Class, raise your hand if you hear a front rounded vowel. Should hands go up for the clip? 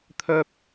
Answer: yes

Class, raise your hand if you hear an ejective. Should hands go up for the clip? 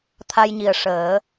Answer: no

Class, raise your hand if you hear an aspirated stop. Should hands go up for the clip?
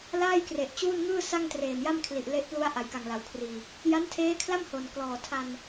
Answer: yes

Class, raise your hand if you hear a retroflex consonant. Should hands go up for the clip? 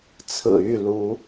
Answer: no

